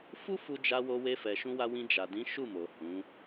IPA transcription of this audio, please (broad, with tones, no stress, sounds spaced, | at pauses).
f u˦ f u˧ d͡ʒ a˧ w o˧ w e˧ f ɛ˨ ʃ ũ˧ w a˧ w ĩ˧ d͡ʒ a˨ d ĩ˨˦ ʃ u˦˨ m o˨ h ũ˨˦